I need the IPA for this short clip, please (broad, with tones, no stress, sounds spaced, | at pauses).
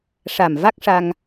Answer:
ʂ a˨˩ m v a˦˥ k̚ ʂ a˧ ŋ